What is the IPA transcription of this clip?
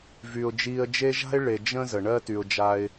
v y˩ ʊ̯ d͡ʒ iː˨ ə̯ d͡ʒ e˦ ʒ a̤˥ ɪ̯ ɭ e˨ d͡ʒ ə̃˥ z ə˩ ɳ ɜ˥ t y˨ ʊ̯ d͡ʒ a˦ ɪ̯

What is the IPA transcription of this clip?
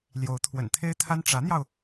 l j o˧˥ ʊ̯ t̪ʰ w ə̰˨˩ n t̪ʰ e˥ ɪ̯ t̪ʰ a˥ n ʈ͡ʂ ä˧˥ n̪ j ɑ˧ ʊ̯

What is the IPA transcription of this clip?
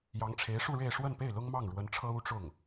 j ɑ˧˥ ŋ ʈ͡ʂʰ e˧˥ ɪ̯ ʂ u˥˧ ɻ e˥˧ ɪ̯ ʂ w ə˥˧ n p e˥˩ ɪ̯ l ʊ˥ ŋ m ɑ˥˩ ŋ ɻ w ə˧˥ n ʈ͡ʂʰ ɤ˥ u˥ ʈ͡ʂ ʊ˥˩ ŋ

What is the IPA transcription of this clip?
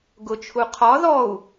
ɡ ʊ t͡ʃʰ u qʰ ɒ ð ɔ u̯

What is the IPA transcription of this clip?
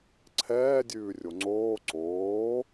ǀʰ ɛː dʲ ʉː rʲ o ŋ͡ǀ oː ǀ oː

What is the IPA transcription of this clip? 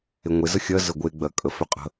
e ŋʷ e z ə xʲ ɜ z ə ɡʷ e ɡ͡b ɜ kʼ ə f ʏ qʼ ə̤

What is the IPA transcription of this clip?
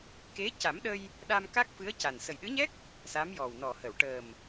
k e˧˥ c a˨˩˦ m ɗ ə˧ j | ɗ a˧ m k a˦˥ k̚ f ɨ˧˥ ə̯ c a˨˩ n s ə˨˩ j ɗ ɨ˧˥ ɲ ɛ˦˥ k̚ | s a˧˥ m j ɔ˨˩ w n ɔ˨˩ h ə˨˩˨ w ʈ əː˨˩ m

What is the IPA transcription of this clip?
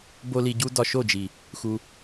b o˦ l i˧ ɟ u˦ d ɒ˧ ʃ o˦˨ d͡ʒ i˨ | x u˧

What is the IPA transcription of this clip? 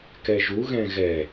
k ɛ ʒ u ɣ ɛ̃ ɣ ɛ

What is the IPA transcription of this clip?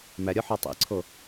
m æ ɾʲ ɒ ħ ɒ tˤ ḭ ǀʰ o

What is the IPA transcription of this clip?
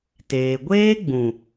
t eː˧ ɡʷ eː˦ ɡ͡b ũ˨

